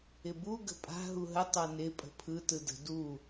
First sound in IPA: ɪ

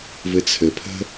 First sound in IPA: v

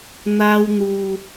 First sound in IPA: n̪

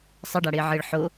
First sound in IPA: sˤ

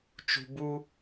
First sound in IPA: t͡ʃ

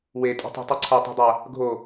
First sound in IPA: w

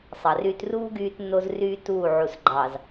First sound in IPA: sˤ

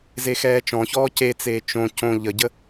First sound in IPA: z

